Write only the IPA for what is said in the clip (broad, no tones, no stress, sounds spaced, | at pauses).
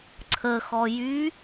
ǀʰ ə x ɔ j y